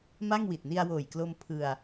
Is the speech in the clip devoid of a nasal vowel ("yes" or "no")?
yes